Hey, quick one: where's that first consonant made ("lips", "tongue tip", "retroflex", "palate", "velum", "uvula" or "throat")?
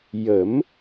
palate